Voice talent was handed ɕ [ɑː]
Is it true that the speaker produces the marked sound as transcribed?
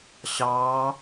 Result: yes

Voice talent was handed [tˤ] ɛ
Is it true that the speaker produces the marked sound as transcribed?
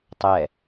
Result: yes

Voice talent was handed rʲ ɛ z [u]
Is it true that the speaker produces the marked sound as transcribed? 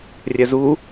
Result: yes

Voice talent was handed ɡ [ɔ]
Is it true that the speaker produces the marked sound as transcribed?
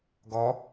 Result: yes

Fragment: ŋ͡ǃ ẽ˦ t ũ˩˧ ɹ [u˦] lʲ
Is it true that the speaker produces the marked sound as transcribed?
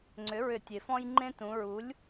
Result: no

